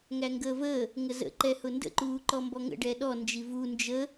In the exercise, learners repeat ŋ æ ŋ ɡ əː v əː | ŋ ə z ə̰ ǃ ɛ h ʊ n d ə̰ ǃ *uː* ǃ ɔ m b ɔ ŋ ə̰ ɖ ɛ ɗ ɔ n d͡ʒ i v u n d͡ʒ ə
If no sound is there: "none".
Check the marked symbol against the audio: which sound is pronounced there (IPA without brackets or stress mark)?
uː